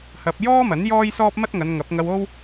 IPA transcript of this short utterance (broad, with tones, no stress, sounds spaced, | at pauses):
h ɐ˧ p̚ j ɔː˥ m ɐ˨˥ n j ɔː˥ j s ɔː˥ p̚ m ɐ˥ t̚ ŋ ɐ˨˧ n ŋ ɐ˨˥ p̚ ŋ ɐ˧ w o˥ w